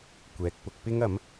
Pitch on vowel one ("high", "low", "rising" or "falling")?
low